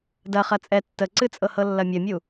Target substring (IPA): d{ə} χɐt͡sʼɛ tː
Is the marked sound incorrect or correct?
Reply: incorrect